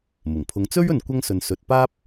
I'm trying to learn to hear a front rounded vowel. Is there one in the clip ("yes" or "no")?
no